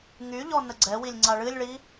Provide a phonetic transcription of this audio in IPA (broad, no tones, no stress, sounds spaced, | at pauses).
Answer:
ŋ y ʎ ɔ n ə ɡ͡ǀ ɛ w i lʲ ŋ͡ǀ a ɭ ɨ lʲ ɭ i